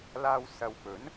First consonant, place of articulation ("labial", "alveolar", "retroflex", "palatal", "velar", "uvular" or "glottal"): alveolar